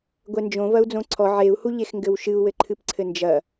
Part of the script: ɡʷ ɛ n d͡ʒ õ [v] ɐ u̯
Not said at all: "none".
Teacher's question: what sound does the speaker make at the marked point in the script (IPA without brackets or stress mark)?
v